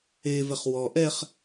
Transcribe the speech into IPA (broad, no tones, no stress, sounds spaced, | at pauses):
e v ɛ χ w ɔ ʔ ɛ χ